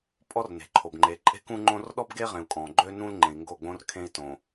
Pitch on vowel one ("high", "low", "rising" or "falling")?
high